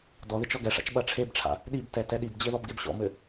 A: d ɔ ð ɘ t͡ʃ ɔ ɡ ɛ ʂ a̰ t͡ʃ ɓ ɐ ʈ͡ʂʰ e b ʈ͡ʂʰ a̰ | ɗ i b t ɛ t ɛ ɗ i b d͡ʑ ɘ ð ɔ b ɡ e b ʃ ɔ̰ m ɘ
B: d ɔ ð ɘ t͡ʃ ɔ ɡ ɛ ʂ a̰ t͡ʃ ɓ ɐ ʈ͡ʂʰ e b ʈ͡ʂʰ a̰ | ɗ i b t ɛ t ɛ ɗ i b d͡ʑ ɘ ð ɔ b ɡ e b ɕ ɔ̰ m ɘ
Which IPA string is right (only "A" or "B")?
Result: B